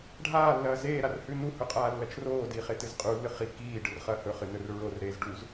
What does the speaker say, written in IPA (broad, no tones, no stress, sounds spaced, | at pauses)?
ɖʱ aː lː ɐː z eː ɾ a r h ʉ n u h ɵ qʼ aː lː ɐ t͡ʃ r oː d iː χ e t ɨ z qʼ u lː ɨ χ i k iː ɖ ɨ r χ ɐː h ɵ χ ɨ n ɵ r ɹ o r ɾ eː z ɖ u z